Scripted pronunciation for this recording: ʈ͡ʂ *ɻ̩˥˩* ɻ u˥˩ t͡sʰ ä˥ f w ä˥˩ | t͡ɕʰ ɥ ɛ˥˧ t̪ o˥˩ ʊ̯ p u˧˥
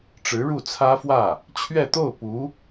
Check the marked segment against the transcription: incorrect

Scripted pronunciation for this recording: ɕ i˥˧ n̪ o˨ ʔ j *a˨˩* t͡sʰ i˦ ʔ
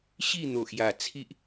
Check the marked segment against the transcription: correct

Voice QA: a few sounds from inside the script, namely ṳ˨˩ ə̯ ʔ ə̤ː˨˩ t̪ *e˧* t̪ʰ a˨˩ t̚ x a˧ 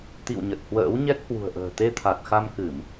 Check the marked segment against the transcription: correct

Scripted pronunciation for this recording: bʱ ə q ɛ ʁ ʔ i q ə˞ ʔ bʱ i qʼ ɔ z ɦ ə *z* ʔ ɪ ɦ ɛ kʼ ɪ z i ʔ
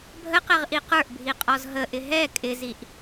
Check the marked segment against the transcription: incorrect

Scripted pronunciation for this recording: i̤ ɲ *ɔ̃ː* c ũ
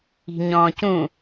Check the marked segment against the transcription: correct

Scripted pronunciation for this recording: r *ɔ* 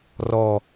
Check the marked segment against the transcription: correct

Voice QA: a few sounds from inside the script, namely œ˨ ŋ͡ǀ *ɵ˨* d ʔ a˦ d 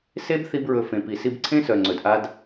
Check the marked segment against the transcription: correct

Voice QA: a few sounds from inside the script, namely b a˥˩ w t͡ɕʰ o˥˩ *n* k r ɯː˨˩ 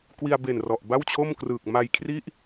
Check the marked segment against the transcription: incorrect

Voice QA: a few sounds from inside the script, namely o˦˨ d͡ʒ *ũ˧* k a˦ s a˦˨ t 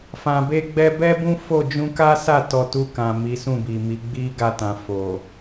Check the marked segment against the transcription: correct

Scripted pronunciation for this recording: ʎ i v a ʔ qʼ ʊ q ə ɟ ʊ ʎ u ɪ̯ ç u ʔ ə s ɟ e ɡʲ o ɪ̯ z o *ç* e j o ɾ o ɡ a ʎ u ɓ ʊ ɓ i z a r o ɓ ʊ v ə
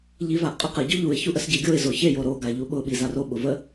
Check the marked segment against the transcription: correct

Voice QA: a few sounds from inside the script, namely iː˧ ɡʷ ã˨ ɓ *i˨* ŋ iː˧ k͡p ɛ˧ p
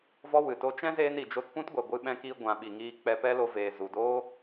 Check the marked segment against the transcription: correct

